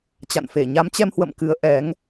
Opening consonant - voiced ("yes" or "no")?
no